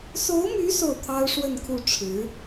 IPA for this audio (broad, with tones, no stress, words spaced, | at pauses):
so˧˥ʊ̯my˧˥ so˥˩ʊ̯t̪ʰɑ˥ʊ̯ʂwə˥˧nkʰu˥˩ ʈ͡ʂʰɻ̩˧˥